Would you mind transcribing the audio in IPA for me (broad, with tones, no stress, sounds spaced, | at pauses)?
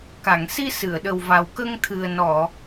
k a˨˩˨ ŋ s i˧ s ɨ˨˩˨ ə̯ ɗ ə˨˩ w v a˨˩ w k ə˧ ŋ t̪ʰ ɨ˨˩ ə̯ n ɔ˨˩˨